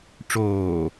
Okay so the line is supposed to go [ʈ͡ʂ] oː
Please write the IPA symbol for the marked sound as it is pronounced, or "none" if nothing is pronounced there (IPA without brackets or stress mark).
ʈ͡ʂ